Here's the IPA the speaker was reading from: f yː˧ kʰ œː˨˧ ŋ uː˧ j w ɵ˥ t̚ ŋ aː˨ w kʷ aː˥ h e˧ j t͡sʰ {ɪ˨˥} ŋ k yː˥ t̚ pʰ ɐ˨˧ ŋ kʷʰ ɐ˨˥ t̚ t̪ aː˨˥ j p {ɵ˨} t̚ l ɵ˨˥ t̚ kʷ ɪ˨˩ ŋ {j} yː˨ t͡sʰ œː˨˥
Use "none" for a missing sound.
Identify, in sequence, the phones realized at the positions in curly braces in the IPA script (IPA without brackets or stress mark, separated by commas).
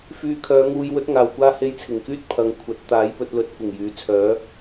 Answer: ɪ˨˩, ɵ˧, j